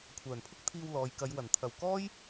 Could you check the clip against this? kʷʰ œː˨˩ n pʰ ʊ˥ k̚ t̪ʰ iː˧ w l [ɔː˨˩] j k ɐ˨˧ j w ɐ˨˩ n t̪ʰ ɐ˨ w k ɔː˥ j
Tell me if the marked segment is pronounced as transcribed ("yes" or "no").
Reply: no